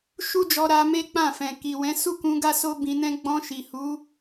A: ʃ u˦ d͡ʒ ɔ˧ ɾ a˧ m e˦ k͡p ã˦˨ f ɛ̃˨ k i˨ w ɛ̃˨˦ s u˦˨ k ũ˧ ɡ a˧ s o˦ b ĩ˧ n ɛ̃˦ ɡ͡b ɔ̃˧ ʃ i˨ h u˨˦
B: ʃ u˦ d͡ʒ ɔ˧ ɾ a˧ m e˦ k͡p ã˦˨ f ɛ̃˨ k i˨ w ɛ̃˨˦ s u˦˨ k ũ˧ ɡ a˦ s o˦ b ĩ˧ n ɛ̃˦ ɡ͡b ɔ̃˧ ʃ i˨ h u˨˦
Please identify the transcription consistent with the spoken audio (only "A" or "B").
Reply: B